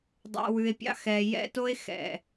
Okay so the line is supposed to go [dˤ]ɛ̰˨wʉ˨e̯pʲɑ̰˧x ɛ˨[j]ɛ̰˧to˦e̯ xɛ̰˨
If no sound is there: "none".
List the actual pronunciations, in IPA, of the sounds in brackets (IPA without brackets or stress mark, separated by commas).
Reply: dˤ, j